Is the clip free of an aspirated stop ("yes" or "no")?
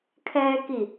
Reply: no